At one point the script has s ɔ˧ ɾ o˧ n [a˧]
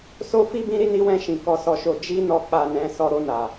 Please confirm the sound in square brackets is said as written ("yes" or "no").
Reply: no